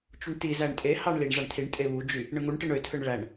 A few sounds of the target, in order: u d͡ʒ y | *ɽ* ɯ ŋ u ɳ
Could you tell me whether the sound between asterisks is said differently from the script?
yes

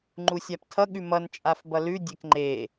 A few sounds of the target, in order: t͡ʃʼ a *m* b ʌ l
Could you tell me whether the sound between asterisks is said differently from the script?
yes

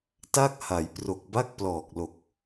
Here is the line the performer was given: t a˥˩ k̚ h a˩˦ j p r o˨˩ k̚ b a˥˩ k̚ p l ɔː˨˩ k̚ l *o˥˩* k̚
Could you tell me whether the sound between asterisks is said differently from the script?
yes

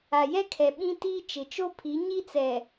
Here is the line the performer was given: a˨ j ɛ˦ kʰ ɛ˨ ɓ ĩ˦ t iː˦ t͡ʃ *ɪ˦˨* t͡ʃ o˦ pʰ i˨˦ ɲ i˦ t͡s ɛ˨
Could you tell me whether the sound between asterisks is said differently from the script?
yes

